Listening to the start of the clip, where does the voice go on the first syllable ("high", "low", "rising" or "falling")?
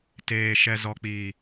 low